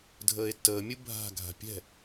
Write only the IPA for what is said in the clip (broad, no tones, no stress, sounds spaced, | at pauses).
dʱ əː e̯ tː əː mʲ ɯ bʱ a̤ ɡʱ a̤ pʲ ɛ̤